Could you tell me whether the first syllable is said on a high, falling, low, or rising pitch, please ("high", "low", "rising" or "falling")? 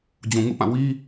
low